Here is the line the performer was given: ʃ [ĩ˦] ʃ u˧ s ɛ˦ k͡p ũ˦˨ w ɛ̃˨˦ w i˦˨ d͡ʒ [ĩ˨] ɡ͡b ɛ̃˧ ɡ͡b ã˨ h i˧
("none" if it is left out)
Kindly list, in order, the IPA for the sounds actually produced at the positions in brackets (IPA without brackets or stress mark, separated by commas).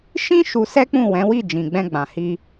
ĩ˦, ĩ˨